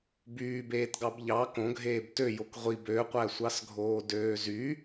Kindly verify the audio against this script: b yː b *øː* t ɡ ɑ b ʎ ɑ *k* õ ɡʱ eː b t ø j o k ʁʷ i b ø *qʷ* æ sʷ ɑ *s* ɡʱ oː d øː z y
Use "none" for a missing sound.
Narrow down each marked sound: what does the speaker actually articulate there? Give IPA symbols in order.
eː, k, qʷ, s

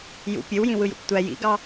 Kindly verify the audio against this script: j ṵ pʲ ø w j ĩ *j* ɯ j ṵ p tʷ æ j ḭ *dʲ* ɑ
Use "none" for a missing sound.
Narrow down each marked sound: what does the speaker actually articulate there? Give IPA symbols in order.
w, ɡ

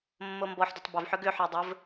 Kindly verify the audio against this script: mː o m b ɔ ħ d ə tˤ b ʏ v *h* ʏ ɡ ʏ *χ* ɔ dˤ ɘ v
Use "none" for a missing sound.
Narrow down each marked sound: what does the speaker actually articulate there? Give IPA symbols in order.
ħ, ħ

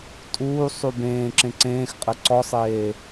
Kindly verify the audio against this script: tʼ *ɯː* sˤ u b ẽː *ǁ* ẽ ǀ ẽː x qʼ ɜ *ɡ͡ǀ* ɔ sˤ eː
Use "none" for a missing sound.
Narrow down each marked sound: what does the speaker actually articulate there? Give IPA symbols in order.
uː, ǁ, ǀ

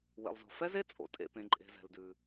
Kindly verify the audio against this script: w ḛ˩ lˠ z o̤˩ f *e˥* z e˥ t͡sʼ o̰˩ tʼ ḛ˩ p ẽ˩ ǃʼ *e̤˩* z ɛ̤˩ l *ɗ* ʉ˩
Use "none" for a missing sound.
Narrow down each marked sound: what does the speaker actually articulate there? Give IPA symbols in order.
ɛ˥, e̤˩, d

